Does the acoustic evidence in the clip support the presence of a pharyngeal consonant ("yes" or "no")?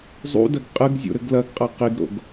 no